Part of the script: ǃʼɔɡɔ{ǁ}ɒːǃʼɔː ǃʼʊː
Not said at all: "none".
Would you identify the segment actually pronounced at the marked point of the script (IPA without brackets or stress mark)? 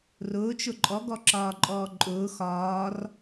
ǁ